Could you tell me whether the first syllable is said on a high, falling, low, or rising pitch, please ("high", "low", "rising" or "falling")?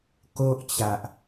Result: high